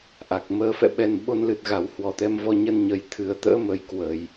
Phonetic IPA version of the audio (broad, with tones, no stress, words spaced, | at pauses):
ʔa˨˩k̚məː˧ fɛ̰˧˨ɓɛ˨˩n ɓo˧nlɨ˨˩t̚ ɣa˨˩whwɔ˨˩t̪ɛ˧m vɔ˧ɲə˧n ɲə˧˩jt̪ʰɨ˨˩ə̯t̪ə̰ː˧˥mə˨˩j kwə˧˩˨j